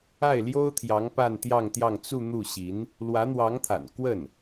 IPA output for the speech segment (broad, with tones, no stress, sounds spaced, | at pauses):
a˥˩ ɪ̯ l j o˥ ʊ̯ t̪ʰ j ɑ˧˥ ŋ p a˥˧ n t̪ j ɑ˥˧ ŋ t̪ j ɑ˥˧ ŋ t͡s u˥˧ n̪ u˥˩ ɕ i˧˥ n | l w ä˧˥ n̪ w ɑ˧˥ ŋ t̪ʰ a̰˨˩ n k w ə˥˩ n